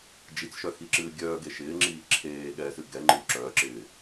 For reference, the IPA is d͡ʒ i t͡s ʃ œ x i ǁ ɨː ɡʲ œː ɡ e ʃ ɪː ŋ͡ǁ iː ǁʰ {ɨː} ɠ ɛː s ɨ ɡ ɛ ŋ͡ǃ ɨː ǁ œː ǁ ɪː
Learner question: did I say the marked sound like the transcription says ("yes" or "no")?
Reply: no